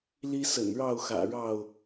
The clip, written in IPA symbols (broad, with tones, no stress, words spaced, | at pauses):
li˦sə̰˨˩nɻɑ˥˨ʊ̯xä̰˨˩ ɻɑ˥˨ʊ̯